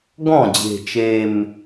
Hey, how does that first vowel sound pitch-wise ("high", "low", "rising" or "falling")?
falling